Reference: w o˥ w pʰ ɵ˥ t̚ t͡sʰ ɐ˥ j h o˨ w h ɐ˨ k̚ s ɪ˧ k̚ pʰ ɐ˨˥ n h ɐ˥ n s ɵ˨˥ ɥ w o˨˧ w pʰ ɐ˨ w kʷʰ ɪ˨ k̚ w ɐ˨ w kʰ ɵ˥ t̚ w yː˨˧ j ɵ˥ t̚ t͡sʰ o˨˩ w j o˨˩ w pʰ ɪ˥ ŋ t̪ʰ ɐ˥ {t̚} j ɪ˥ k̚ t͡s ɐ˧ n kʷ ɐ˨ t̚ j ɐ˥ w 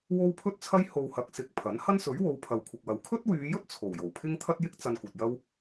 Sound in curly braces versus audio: correct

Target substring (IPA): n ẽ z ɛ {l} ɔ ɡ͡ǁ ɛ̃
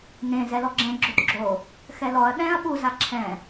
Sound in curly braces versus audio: correct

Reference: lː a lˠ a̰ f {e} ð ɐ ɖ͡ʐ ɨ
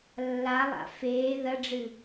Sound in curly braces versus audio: incorrect: eː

